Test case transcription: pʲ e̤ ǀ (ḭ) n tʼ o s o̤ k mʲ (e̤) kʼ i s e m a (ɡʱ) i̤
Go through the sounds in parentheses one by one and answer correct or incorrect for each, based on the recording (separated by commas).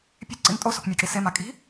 correct, incorrect, incorrect